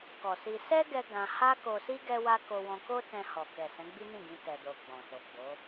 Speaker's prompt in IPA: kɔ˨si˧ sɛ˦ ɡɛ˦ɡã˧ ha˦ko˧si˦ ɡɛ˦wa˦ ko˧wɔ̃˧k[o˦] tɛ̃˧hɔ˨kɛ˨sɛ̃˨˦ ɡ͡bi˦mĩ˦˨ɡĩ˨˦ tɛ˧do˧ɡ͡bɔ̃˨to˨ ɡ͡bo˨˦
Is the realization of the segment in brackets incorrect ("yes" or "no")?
no